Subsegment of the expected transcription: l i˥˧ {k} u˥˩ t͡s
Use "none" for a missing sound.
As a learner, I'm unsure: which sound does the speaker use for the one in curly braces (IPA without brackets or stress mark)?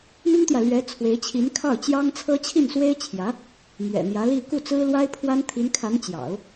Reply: k